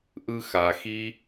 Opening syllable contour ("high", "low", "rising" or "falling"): high